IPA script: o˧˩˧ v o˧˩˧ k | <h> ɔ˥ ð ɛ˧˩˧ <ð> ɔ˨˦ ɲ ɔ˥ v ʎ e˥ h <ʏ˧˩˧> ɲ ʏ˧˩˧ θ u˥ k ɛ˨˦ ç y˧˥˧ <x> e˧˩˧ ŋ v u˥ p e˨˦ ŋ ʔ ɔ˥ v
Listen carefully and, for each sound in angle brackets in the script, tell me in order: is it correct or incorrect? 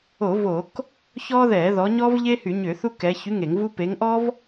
incorrect: ç, correct, incorrect: y˧˩˧, incorrect: ŋ

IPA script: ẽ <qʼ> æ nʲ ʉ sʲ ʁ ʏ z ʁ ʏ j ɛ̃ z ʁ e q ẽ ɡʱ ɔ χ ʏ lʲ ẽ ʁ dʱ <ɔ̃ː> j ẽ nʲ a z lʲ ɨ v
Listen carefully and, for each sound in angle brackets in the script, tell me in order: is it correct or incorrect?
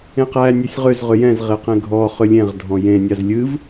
incorrect: q, incorrect: ɔ̃

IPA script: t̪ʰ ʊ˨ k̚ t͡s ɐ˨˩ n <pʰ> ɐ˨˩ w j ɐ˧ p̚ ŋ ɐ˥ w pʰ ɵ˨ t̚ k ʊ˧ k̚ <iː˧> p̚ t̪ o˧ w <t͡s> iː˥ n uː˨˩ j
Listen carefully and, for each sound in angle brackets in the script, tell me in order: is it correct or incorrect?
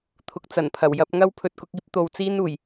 correct, incorrect: iː˥, correct

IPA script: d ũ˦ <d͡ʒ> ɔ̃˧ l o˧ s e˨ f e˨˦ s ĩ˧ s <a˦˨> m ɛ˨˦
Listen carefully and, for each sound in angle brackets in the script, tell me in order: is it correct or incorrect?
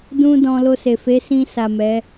incorrect: d, incorrect: a˨

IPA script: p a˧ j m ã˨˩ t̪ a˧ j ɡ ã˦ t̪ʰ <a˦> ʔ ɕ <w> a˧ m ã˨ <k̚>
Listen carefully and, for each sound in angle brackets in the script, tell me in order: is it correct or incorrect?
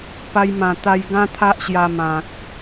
correct, incorrect: j, correct

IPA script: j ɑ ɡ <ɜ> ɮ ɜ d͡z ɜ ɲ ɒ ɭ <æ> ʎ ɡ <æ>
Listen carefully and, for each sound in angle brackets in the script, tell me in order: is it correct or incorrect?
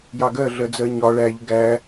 correct, correct, correct

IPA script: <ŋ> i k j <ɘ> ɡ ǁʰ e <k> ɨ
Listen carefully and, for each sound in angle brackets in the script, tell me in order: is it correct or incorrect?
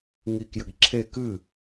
correct, correct, correct

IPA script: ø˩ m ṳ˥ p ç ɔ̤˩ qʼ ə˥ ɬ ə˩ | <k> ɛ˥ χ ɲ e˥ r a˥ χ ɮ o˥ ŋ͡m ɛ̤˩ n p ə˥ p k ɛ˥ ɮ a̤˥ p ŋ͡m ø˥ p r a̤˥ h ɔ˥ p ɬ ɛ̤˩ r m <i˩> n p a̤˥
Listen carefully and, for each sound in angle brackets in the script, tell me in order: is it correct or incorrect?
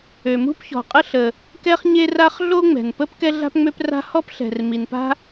correct, correct

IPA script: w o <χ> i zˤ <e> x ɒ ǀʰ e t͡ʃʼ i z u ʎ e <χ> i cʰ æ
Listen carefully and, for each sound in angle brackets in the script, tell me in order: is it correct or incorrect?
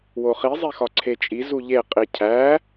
correct, correct, incorrect: qʼ

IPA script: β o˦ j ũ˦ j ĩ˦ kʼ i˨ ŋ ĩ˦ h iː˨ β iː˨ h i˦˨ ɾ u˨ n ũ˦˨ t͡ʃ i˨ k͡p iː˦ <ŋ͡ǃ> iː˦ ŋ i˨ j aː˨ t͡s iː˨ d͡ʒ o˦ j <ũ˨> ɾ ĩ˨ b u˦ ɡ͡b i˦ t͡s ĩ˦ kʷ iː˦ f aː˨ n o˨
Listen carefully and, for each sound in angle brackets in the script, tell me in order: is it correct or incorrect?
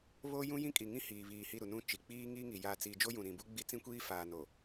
incorrect: ŋ, correct

